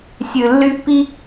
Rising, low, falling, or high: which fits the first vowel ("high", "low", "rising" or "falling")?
low